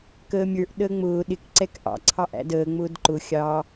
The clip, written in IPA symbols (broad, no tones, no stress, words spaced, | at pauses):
kəːmʲə˞ʔ ɗəːŋ͡mʊː ɗɪk ǀɛkʔɑ̰ ǀʰɑʔæ̰dəː ŋ͡mʊːdǃʊ xʲɑ